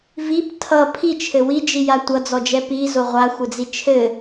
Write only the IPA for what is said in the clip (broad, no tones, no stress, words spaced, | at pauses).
vip tʰʌ pʰit͡ʃʰɘ wid͡ʒija tʷʌd͡zɔd͡ʒɛ pizo ʁʷaxʷɘd͡zi t͡ʃʰɘ